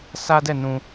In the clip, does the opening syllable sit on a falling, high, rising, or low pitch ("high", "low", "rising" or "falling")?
high